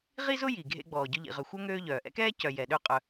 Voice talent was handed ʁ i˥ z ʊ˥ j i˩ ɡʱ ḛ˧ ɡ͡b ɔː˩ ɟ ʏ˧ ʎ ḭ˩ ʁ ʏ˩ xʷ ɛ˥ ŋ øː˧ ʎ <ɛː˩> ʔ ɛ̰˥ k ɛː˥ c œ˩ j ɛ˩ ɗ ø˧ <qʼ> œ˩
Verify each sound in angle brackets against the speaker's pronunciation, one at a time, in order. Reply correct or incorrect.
incorrect, correct

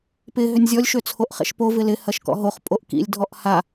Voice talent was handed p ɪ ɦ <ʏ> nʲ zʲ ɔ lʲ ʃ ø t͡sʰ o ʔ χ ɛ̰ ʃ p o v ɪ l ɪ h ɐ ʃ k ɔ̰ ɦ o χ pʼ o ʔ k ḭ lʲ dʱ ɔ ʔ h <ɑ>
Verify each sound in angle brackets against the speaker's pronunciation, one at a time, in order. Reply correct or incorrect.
correct, incorrect

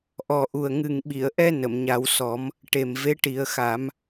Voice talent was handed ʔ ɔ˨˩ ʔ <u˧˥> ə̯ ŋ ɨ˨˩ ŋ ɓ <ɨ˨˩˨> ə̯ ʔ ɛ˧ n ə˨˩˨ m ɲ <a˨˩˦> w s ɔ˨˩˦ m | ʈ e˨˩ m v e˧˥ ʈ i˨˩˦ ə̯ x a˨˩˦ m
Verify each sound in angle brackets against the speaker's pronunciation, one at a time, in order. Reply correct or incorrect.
incorrect, incorrect, correct

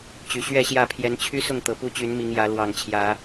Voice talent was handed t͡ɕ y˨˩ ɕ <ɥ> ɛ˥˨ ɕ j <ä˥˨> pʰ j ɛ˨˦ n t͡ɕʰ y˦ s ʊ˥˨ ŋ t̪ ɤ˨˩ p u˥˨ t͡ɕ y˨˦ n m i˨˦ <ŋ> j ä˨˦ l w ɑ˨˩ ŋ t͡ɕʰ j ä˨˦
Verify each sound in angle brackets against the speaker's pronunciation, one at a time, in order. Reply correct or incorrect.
correct, correct, correct

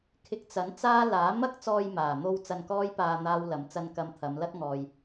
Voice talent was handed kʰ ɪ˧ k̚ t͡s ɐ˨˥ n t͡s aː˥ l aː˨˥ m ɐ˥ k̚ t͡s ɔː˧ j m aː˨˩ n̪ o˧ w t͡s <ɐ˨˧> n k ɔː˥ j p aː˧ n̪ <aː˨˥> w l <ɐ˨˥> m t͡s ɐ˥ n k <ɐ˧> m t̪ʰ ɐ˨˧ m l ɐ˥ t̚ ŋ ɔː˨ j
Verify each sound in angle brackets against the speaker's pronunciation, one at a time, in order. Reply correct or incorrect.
incorrect, incorrect, correct, correct

